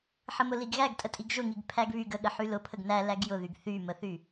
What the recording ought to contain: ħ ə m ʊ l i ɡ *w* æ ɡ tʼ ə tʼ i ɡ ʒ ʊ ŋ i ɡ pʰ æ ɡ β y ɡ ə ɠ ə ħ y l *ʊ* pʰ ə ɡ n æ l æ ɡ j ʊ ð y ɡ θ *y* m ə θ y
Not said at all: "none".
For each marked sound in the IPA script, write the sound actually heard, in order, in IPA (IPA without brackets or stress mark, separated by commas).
ɣ, ʊ, y